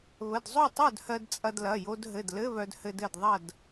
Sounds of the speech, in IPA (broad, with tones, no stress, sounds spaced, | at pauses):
β ə˩˧˩ d zˤ o˥˨ tˤ œ˥˨ d h ɜ˧ d t͡sʼ ɐ˧ d l ɐ˩˧˩ j o˧ d ɦ ɘ˩˧˩ d l ɘ˧˥˧ β œ˧ d h ɘ˧ d ɘ˥˨ d ðˤ ɐ˥˨ d